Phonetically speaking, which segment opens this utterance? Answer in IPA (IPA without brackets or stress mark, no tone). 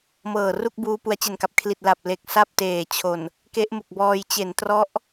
m